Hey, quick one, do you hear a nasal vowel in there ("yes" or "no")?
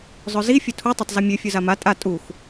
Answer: no